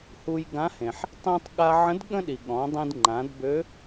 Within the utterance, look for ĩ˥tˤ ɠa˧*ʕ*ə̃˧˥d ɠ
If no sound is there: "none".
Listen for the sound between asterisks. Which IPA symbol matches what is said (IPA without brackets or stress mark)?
ʕ